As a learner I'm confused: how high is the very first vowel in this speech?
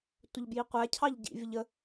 mid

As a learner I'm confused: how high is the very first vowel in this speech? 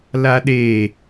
low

